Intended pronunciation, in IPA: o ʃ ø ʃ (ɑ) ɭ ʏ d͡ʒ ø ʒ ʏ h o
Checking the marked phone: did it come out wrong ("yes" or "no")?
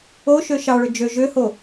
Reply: no